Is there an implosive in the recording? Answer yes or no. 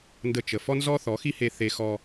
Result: no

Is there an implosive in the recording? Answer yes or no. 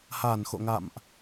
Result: no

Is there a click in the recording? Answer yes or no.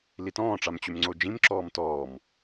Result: yes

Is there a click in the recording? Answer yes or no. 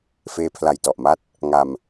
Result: no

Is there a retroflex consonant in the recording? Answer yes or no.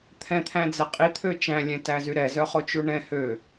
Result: yes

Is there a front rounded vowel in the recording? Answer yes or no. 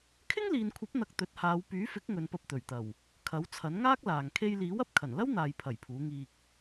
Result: yes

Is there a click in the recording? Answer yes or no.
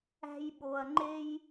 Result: yes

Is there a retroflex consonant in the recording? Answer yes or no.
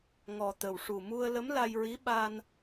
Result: yes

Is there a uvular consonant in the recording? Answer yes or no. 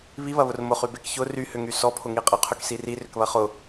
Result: yes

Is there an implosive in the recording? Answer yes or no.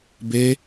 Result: no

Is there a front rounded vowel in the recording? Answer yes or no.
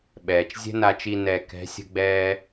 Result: no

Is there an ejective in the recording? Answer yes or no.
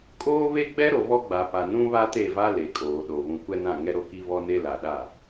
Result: yes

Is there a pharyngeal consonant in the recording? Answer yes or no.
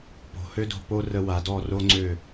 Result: no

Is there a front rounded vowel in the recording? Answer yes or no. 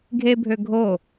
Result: yes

